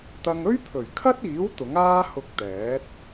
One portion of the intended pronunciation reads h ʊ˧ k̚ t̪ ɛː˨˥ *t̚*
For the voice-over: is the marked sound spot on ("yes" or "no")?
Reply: yes